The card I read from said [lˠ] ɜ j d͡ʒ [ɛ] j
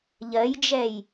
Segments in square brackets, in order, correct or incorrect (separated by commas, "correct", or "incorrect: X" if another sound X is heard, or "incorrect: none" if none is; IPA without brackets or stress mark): incorrect: ʎ, correct